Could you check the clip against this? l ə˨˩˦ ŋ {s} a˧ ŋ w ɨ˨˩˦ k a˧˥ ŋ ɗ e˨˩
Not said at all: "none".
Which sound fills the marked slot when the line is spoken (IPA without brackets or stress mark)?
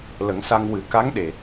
s